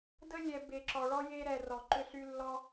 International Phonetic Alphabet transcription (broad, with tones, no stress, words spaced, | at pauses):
də˦lʲɛ˨ be˨ǁɔ˩ɭɔ˥ je˦ɾɛ˨ rɔ˩ ǃʏ˦ɬy˦ lːɔ˦